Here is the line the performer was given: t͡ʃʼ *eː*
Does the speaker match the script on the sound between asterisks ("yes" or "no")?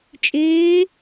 yes